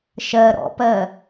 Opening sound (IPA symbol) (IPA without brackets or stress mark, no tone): ʃ